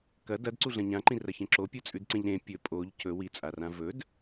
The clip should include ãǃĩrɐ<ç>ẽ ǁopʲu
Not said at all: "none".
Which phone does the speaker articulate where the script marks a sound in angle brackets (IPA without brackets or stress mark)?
ç